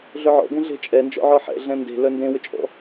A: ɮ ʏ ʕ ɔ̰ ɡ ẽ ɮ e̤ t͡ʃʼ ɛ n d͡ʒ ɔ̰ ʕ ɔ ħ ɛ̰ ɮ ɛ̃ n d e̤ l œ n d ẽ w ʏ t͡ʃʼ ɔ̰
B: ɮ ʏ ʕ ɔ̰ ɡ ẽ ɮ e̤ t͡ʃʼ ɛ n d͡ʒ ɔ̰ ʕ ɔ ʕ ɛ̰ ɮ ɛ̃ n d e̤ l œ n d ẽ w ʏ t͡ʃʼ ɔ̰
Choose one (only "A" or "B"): A